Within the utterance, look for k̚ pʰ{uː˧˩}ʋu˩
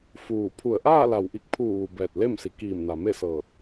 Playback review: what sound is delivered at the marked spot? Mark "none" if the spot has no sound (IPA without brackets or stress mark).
uː˧˩